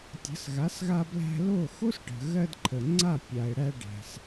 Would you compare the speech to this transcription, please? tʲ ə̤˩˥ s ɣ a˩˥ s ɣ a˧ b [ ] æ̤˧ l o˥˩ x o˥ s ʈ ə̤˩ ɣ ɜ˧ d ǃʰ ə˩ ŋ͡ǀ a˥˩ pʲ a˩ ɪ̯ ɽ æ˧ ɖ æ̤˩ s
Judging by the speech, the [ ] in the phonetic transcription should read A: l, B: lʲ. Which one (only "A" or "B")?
A